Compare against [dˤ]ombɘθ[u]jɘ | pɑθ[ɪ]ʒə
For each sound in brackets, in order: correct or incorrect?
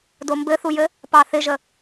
incorrect, correct, correct

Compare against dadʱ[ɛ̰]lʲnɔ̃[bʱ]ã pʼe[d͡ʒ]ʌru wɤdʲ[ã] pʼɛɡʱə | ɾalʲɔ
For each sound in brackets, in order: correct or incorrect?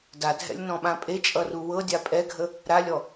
correct, incorrect, incorrect, incorrect

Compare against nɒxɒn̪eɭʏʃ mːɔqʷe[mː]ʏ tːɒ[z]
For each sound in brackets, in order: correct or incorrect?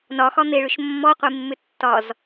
correct, correct

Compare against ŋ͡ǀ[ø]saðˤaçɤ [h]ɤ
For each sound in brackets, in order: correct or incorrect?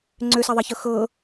correct, incorrect

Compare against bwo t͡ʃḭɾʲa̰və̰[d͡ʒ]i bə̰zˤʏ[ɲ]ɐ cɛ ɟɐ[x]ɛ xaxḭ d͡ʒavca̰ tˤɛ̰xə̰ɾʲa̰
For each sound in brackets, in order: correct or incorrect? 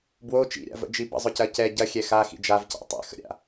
correct, incorrect, incorrect

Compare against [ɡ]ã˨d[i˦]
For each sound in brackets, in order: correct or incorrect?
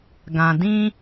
correct, incorrect

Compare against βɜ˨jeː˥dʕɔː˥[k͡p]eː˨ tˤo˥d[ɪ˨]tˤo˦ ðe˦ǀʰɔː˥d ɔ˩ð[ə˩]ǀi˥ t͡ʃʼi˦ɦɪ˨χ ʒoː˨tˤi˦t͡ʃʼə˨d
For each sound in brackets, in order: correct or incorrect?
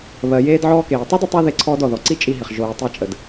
incorrect, correct, incorrect

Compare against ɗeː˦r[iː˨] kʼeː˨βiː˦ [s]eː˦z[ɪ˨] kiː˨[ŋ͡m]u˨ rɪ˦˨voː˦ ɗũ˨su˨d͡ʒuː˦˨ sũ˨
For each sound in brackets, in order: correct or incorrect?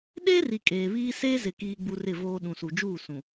incorrect, correct, correct, incorrect

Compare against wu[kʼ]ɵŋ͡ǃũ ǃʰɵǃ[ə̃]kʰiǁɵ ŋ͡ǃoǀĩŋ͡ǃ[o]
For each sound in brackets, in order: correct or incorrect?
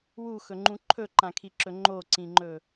incorrect, incorrect, incorrect

